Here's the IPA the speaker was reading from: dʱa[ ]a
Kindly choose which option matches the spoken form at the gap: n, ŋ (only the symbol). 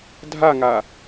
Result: ŋ